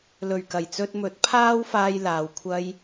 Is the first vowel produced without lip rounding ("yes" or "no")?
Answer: no